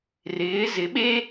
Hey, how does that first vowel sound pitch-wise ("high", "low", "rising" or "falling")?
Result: rising